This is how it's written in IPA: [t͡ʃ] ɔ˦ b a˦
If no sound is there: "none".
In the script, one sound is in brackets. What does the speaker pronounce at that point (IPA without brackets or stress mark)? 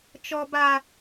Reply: t͡ʃ